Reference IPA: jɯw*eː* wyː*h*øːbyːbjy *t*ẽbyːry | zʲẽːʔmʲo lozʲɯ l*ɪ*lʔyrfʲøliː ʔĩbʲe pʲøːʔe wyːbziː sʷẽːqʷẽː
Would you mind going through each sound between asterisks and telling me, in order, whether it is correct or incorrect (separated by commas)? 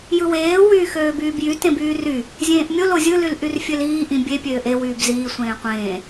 correct, incorrect, correct, incorrect